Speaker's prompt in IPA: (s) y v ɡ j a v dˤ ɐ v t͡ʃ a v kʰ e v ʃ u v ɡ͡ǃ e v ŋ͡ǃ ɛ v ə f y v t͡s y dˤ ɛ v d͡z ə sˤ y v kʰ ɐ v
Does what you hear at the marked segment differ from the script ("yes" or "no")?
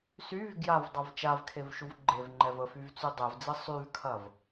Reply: no